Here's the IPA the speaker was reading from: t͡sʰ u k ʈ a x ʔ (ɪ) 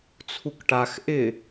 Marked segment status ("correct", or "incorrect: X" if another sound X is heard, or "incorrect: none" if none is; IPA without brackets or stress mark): correct